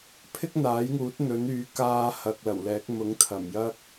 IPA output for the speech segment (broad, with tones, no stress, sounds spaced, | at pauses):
pʰ ɪ˥ k̚ n̪ aː˨˥ j ŋ uː˨˥ t̚ n̪ ɵ˨˥ n yː˨˥ k aː˧ h ɐ˨ k̚ l ɐ˨˩ w l ɛː˨˥ k̚ m ʊ˨˥ ŋ t̪ʰ ɐ˨˩ m j ɐ˥ k̚